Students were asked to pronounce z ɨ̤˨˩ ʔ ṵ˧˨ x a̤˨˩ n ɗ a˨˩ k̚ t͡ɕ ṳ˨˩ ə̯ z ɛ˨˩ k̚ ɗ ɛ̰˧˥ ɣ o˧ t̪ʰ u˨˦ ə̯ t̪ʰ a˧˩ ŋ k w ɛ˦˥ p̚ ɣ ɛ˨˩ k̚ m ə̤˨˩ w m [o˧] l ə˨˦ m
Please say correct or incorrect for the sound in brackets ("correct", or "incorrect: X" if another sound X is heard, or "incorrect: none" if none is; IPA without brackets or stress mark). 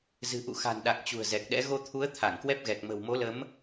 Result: incorrect: o˨˦